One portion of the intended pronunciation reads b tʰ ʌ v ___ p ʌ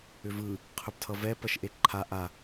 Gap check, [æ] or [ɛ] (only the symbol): ɛ